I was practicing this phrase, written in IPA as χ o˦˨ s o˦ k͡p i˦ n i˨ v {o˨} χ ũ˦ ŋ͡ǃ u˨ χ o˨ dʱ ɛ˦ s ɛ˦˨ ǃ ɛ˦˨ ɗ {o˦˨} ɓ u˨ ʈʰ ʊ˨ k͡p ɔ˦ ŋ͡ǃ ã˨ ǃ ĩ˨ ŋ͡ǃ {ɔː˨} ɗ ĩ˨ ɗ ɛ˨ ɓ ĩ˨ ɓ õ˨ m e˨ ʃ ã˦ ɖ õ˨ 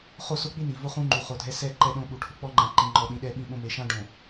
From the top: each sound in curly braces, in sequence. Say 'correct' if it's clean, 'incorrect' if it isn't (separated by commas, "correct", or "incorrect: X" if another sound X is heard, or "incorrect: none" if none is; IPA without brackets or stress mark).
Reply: incorrect: o˦, incorrect: õ˦˨, incorrect: ɔ˨